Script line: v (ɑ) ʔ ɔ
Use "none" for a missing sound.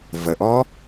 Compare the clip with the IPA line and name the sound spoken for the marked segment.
ə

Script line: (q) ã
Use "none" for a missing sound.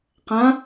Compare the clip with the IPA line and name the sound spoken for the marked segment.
q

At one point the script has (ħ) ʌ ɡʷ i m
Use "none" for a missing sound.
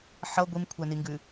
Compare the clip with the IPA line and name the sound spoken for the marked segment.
ħ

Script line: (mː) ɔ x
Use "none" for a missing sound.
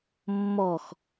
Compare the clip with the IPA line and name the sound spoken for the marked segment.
mː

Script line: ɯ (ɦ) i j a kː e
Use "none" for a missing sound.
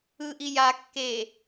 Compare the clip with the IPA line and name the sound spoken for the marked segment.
ʔ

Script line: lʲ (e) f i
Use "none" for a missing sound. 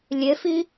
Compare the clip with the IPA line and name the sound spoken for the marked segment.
e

